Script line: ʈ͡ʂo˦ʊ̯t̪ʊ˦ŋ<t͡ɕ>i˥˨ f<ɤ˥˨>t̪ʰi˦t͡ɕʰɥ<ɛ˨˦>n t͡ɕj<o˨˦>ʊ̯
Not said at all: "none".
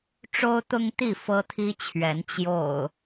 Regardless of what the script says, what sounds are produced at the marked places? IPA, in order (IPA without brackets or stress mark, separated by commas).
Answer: t̪, ɤ˦, ɛ˨˦, o̰˨˩